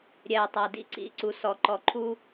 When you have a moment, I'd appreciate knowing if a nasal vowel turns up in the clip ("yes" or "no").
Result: no